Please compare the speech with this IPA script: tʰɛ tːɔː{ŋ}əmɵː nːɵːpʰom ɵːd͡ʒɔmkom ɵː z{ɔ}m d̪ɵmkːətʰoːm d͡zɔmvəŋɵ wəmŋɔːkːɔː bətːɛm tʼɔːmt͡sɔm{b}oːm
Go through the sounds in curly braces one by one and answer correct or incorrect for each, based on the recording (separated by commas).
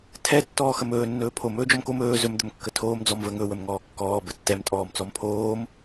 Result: incorrect, incorrect, incorrect